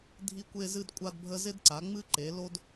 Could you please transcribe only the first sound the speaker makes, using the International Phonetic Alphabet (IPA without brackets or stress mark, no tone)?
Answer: dʱ